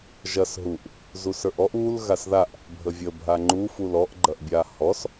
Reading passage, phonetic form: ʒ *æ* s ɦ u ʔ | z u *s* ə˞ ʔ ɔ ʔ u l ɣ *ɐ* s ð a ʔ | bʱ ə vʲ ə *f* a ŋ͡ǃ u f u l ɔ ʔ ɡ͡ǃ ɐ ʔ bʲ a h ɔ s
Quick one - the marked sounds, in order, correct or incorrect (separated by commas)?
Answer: incorrect, correct, incorrect, incorrect